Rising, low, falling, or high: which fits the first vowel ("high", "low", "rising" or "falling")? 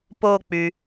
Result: falling